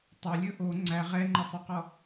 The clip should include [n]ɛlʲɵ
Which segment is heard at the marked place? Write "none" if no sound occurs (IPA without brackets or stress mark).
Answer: tˤ